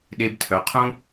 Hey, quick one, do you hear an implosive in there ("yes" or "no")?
yes